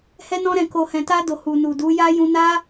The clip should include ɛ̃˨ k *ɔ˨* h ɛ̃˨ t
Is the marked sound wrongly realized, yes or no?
yes